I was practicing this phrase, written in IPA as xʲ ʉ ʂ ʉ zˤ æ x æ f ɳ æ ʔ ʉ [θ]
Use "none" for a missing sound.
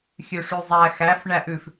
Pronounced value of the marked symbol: f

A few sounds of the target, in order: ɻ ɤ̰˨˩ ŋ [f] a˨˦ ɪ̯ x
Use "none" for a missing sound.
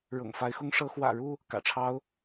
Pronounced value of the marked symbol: f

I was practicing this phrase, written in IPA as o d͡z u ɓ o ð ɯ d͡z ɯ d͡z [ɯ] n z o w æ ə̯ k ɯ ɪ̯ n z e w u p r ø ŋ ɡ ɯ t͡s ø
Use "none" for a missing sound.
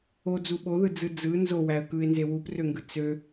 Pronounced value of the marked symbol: ɯ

